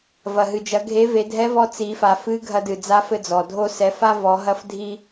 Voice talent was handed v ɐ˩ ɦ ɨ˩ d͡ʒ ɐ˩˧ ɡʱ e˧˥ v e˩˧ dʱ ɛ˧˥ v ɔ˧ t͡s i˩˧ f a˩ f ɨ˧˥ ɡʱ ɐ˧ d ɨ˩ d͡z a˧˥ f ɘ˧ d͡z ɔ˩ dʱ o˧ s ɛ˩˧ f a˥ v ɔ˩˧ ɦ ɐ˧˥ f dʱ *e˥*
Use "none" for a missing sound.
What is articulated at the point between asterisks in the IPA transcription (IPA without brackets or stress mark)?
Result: i˥